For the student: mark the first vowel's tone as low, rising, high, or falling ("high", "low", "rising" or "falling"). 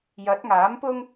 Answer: rising